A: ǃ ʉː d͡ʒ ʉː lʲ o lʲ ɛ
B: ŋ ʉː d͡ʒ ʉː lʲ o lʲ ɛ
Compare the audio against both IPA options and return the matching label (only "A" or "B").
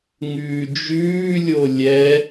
B